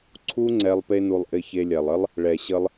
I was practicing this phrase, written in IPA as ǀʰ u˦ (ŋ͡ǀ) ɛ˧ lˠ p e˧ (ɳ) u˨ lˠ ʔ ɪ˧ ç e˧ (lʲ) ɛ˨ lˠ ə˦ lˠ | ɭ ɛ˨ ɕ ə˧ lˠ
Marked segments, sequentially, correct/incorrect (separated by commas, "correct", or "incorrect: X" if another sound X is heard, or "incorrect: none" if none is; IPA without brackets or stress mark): correct, incorrect: n, correct